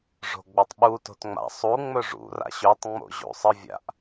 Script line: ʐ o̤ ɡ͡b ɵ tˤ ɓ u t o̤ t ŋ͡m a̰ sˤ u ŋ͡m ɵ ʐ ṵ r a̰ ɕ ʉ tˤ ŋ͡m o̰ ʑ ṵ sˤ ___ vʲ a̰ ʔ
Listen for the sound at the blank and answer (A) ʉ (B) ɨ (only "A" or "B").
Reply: B